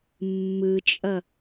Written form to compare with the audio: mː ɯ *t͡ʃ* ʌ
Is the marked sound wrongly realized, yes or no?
yes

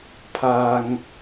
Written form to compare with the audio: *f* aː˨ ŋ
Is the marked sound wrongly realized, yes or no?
yes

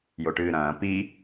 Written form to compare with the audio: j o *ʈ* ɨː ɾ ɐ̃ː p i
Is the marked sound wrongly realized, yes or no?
no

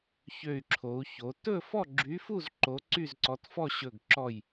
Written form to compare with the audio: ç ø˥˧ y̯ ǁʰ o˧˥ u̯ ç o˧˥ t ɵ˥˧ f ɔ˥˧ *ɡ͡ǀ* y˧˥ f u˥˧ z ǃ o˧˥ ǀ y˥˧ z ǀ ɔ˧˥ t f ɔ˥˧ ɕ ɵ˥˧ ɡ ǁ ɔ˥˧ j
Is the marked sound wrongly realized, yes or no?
yes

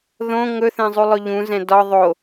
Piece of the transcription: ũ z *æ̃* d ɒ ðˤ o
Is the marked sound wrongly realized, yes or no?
yes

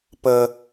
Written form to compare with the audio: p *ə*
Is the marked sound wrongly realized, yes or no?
no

